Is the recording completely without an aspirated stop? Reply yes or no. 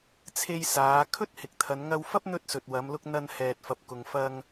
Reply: no